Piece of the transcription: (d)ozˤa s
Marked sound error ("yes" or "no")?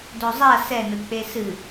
no